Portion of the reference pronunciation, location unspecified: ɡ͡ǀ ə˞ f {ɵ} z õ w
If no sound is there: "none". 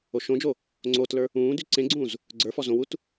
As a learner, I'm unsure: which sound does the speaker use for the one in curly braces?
ɔ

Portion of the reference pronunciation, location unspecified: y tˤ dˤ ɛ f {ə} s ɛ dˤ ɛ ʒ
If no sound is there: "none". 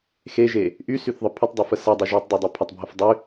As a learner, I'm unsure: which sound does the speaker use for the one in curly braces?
ə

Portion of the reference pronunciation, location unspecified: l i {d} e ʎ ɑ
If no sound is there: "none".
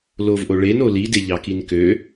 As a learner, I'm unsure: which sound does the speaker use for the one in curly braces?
d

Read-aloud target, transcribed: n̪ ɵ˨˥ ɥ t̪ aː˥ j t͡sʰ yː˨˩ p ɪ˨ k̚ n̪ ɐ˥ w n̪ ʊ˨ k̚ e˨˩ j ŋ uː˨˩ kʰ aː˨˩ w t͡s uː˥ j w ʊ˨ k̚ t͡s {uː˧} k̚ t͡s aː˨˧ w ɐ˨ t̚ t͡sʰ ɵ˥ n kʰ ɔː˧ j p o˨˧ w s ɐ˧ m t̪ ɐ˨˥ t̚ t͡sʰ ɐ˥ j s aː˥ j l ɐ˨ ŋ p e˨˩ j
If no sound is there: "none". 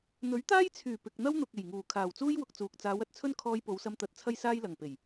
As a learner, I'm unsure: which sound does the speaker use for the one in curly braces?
uː˨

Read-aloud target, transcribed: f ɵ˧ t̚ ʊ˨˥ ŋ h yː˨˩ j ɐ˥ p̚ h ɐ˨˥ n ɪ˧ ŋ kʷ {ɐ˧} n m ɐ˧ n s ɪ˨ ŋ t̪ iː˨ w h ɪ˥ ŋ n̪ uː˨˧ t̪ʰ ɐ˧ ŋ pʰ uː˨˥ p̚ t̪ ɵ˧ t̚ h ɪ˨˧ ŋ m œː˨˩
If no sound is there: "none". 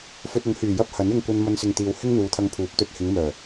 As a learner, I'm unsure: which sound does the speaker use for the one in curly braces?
ɐ˧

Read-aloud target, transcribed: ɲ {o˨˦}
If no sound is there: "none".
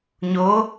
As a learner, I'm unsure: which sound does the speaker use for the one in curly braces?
o˨˦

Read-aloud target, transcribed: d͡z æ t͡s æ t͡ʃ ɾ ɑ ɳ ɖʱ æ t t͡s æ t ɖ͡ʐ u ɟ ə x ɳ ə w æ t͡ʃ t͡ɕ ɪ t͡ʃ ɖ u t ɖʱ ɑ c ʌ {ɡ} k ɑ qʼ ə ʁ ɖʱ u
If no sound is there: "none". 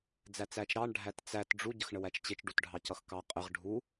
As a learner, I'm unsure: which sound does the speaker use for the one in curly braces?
x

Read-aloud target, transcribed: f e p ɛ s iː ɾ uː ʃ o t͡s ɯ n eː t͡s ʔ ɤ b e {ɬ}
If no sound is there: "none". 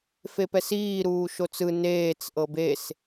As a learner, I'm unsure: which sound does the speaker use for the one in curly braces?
s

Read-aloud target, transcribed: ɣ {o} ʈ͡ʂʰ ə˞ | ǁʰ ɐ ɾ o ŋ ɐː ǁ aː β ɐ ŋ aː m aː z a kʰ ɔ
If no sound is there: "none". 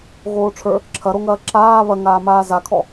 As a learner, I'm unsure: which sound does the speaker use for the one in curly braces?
oː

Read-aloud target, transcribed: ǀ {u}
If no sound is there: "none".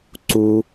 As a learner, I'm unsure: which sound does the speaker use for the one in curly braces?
u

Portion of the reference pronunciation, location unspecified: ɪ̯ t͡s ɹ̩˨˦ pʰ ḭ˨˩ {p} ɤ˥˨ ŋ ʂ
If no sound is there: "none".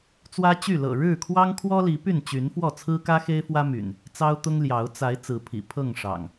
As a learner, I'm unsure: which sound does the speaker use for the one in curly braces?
pʰ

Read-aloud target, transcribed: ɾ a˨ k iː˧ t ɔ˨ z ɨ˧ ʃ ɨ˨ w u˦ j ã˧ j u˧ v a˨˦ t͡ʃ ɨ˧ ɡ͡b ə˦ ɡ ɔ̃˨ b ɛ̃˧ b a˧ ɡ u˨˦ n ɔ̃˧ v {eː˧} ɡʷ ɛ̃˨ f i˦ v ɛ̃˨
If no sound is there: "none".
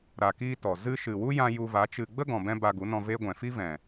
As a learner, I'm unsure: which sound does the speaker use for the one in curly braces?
eː˦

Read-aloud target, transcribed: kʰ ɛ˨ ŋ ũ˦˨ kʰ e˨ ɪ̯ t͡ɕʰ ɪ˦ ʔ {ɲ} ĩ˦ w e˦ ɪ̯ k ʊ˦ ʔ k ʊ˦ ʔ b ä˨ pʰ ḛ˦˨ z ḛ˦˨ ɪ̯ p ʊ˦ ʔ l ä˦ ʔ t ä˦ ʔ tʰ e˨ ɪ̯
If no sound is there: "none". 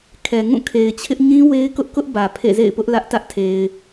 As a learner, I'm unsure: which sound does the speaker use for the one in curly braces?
ɲ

